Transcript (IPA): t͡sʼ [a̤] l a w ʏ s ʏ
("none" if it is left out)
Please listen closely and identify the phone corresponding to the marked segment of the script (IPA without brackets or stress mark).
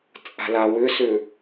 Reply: a̤